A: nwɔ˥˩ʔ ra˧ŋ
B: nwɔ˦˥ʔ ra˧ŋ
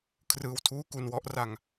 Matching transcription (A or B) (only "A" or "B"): B